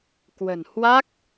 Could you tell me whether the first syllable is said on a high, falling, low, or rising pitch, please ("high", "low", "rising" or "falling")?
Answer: low